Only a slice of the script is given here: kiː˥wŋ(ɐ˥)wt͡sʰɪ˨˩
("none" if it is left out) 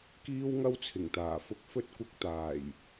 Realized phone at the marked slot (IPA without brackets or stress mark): ɐ˥